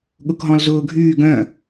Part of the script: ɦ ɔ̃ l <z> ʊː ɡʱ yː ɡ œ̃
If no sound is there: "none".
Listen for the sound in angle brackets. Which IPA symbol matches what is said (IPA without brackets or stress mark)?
z